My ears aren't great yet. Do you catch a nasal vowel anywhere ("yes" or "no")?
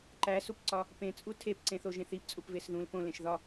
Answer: yes